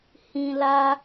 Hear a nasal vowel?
yes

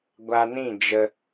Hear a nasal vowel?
yes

